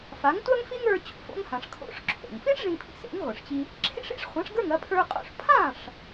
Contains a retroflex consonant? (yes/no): yes